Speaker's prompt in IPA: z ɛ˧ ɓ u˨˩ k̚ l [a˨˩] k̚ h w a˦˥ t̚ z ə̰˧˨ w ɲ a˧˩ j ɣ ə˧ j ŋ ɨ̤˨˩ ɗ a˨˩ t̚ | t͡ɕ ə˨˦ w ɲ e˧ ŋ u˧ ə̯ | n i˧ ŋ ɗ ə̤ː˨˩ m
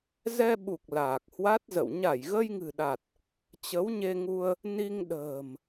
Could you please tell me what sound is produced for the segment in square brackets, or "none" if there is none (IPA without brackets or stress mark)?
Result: aː˨˩